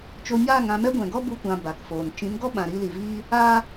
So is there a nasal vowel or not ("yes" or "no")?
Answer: yes